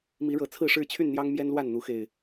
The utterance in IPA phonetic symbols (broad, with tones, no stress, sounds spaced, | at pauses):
m i˨˦ ɻ ɤ˨˩ t͡sʰ ɹ̩˥˨ ʂ ɻ̩˥˨ t͡ɕʰ y˥˨ n n̪ j ɑ˦ ŋ m j ɛ˦ n l w a˥˨ n n̪ u˨˦ x e˨˩ ɪ̯